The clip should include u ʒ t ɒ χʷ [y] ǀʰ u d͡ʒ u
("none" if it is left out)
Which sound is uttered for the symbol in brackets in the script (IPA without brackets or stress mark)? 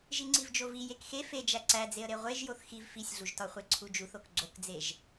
e